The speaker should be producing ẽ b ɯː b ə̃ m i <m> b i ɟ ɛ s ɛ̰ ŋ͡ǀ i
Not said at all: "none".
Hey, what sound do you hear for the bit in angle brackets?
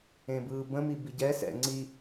none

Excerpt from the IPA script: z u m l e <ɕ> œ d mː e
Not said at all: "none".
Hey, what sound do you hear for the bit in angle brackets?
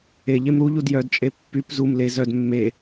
z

